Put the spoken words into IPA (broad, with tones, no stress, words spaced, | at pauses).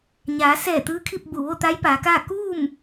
ɲaː˩˧ sɛː˧˩ t̪ɯː˧˥kʰi˥˨p̚ bu˧˩ʋo˥˨t̪a˧˥j paː˩˧kaː˥˨ kuː˥˨m